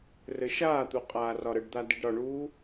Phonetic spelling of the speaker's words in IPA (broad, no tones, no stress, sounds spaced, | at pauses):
r ɘ ʃ aː t̪ u qʼ aː r ɒ ɾ ə ɖ d̪ a d i ɖ ɾ ɒ ɳ uː